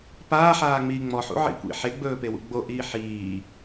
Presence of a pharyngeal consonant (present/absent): present